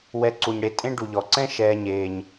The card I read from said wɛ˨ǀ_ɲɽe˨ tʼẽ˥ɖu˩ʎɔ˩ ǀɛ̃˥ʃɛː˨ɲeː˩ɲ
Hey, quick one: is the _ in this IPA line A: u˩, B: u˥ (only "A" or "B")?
A